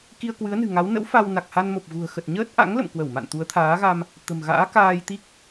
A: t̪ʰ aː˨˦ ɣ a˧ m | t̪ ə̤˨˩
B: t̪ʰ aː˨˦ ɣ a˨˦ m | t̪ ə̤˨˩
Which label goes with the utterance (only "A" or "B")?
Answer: A